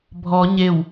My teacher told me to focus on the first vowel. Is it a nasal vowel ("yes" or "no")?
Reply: no